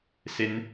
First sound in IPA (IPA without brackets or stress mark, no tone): s